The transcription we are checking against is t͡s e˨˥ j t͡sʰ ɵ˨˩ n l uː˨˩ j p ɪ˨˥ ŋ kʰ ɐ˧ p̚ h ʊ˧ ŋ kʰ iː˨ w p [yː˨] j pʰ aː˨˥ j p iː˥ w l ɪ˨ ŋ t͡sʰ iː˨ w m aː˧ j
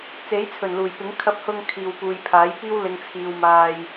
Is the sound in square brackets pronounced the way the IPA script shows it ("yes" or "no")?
no